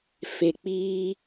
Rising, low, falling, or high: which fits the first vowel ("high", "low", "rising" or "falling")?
low